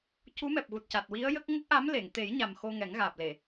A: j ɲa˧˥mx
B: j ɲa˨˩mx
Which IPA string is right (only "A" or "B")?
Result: B